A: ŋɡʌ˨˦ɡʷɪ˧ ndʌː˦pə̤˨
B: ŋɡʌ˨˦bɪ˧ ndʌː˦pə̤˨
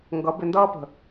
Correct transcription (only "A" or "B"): B